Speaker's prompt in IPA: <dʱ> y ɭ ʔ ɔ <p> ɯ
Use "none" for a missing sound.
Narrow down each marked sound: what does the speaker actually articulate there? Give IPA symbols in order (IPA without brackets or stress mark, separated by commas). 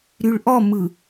ɾ, m